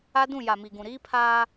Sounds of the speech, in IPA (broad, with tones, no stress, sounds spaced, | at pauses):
a˦ d ũ˦˨ j a˨ m i˨ ɡ ũ˨ ɾ iː˦ pʰ aː˦